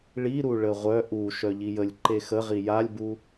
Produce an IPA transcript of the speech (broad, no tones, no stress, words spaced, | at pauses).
ɭiɾu ɭəʁʷœ ʔu ʃœʎijəlʲ ǃexə ʁijalʲbu